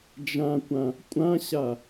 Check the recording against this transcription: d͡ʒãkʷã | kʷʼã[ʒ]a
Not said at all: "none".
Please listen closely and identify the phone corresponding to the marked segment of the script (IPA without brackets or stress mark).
ɕ